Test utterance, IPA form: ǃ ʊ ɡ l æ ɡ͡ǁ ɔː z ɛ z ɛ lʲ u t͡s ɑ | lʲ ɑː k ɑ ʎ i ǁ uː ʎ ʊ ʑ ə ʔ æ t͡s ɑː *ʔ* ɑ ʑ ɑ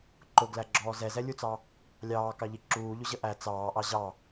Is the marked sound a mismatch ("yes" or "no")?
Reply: no